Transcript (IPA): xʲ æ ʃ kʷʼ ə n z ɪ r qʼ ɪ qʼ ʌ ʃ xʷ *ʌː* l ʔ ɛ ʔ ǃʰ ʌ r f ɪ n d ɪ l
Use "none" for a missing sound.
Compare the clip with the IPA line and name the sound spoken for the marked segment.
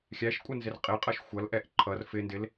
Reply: ʌ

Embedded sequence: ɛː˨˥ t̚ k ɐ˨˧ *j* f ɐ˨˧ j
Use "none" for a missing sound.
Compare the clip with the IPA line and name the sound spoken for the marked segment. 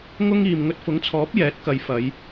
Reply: j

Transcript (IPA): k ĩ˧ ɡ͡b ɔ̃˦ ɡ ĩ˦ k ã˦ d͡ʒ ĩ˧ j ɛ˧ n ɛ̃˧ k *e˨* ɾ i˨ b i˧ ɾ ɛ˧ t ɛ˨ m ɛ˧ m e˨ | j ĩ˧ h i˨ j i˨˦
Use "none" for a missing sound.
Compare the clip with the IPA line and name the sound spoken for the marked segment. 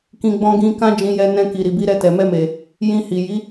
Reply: i˨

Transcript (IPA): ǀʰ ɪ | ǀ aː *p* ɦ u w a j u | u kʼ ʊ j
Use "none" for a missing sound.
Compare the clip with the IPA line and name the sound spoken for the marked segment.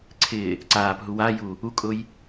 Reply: p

